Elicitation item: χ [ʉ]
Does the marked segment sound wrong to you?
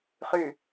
no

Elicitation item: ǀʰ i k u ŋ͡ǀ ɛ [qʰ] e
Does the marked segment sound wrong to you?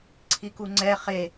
yes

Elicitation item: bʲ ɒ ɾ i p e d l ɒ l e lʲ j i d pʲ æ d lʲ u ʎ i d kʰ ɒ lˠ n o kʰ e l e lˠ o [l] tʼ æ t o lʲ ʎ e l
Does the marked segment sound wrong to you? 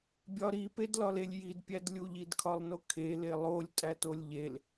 yes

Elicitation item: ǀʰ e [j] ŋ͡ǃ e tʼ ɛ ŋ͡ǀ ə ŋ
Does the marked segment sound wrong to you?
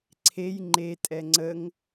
no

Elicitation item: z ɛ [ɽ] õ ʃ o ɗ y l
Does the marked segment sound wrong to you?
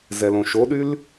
yes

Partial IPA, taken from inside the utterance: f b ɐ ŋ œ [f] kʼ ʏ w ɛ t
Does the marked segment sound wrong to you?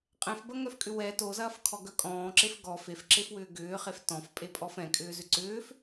no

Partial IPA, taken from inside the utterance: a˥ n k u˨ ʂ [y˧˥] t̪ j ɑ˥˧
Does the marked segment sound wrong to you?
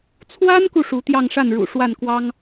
yes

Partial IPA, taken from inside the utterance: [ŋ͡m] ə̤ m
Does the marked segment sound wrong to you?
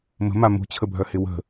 yes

